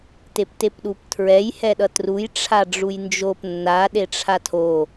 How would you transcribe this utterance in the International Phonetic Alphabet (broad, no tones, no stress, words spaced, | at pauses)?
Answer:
teptepɗuptʰɹɛj hɛɗʌtruj ʈ͡ʂʰaɖ͡ʐujnd͡ʒop nːa ɗeʈ͡ʂʰatʰo